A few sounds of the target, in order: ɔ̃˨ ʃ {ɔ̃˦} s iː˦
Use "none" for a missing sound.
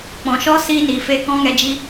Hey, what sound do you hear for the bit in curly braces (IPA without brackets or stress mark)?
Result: ɔ˦